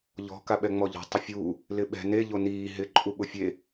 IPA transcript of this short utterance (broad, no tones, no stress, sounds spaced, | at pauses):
ʎ ɔ̤ k a ɓ ɛ ŋ͡m ɔ ʎ ɔ̤ tˤ ɪ fʲ uː | l ɪ ɓ ɛ̤ n e ʎ o n iː ɦ ɪ ǃʼ u ɓ ʊ fʲ e